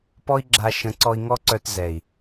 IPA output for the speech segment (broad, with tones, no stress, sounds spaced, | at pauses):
p ɔ˦ i̯ ɡ͡ǁ a˧ ʃ ə̃˨˦ ǀ ɔ˧ i̯ ŋ ɔ˦ ǀ œ˧ t z ɛ˨ i̯